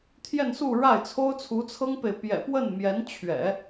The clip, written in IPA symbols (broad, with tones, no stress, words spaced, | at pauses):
t̪ʰjɛ˥˧nsu˥˧ɻa˥˩ɪ̯ t͡sʰo˥ʊ̯t͡sʰu˧˥t͡sʰɤ˥ŋpe˨ɪ̯ pjɛ̰˨˩pwə˥˩nmjɛ˧˥nt͡ɕʰɥɛ̰˨˩˦